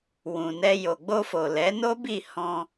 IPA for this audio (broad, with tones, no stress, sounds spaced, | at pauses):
w ũ˨ n ɛ˧ j o˨ ɡ͡b o˧ f o˨ l ɛ˨˦ n o˦ b i˦˨ h ɔ̃˧